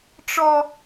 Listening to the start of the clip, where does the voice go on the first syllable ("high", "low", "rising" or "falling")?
high